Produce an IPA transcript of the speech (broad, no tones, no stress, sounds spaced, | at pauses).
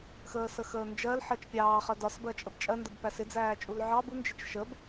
x əː s ə x əː n d͡ʒ ɜ l ħ ɜ t͡ʃ pʲ ɑː χ ɜ d ɒ s b ɜ t͡ʃʼ ə b t͡ʃʼ ɜ n d ə b p æ s ɪ d͡z æː t͡ʃʼ u l ʕ ɑ b u n d͡ʒ ɪ t͡ʃ ʃ ə b